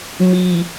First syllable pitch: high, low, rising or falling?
low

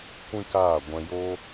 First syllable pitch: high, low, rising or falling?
high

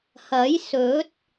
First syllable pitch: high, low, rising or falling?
rising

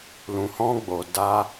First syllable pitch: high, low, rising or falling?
low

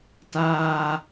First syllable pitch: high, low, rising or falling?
high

